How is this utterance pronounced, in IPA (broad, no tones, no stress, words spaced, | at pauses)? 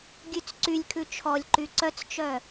ɡʲʉt͡sǀylʲkʰʉ t͡ʃʰɔlʲǃy ǀœt͡st͡ʃœ